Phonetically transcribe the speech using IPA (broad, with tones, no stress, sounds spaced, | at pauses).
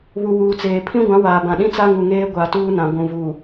β u˨ w uː˨ t͡s eː˨ pʰ ĩ˦ ɡʷ ã˨˦ w aː˨ b ã˨ ɗ ĩ˦ t͡s a˦ ŋ u˨ ŋ eː˦ ɡʷ a˨ t uː˦ n ã˨ ɡʷ ũ˨ v uː˨